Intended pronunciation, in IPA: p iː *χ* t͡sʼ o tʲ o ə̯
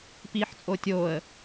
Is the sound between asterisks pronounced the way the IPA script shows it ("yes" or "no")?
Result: no